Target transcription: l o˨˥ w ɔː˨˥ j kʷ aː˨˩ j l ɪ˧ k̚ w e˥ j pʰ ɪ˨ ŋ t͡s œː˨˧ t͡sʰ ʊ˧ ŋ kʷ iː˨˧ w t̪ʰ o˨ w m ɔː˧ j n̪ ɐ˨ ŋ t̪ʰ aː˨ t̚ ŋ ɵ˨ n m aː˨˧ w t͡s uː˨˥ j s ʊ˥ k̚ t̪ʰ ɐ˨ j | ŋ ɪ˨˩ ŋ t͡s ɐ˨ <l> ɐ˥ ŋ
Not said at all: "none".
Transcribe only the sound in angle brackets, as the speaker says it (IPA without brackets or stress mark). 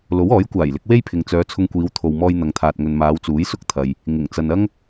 n